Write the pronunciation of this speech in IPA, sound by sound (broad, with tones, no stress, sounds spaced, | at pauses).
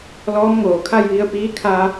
l ɔː˧˥ m ŋ oː˩ kʰ a˥˨ j ʋ i˧ ə̯ p iː˧˥ kʰ a˧